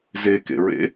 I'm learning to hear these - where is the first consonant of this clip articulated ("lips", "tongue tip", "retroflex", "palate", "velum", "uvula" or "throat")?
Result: tongue tip